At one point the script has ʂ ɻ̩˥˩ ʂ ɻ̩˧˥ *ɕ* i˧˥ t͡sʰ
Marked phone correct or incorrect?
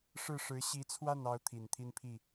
correct